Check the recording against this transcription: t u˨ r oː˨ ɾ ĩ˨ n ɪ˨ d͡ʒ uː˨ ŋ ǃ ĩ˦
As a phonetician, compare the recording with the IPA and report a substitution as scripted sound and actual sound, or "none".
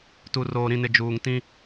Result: ǃ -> t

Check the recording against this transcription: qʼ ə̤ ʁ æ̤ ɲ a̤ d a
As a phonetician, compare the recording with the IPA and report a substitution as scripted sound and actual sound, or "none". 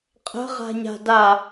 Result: æ̤ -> a̤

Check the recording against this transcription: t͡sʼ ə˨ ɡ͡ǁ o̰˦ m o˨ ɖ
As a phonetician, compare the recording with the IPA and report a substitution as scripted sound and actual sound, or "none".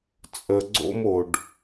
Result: ɡ͡ǁ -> ɡ͡ǀ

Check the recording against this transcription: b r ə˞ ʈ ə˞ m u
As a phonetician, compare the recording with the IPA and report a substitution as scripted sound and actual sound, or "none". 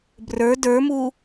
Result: ʈ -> d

